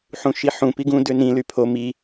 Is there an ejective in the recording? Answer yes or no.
no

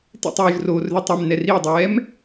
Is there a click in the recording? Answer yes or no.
no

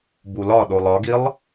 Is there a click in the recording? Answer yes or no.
no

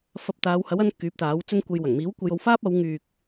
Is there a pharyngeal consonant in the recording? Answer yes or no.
no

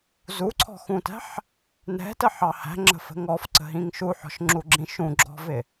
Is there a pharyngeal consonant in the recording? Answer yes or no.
yes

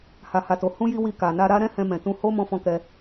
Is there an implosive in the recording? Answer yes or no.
no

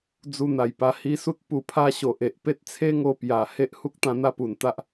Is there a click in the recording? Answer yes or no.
no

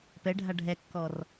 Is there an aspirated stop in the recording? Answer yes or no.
no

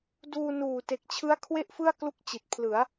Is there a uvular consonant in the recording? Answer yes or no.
no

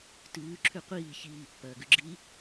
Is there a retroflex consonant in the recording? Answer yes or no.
no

